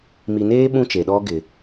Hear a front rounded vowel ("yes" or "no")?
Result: no